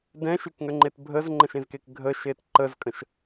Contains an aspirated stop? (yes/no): no